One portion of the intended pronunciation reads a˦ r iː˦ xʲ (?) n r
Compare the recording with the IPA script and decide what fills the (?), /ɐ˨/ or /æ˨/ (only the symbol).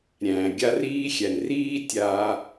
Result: æ˨